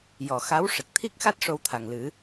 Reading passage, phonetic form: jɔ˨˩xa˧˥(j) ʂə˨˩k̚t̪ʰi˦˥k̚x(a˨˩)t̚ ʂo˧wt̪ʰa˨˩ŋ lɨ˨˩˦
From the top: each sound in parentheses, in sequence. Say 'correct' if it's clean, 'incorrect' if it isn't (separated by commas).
incorrect, incorrect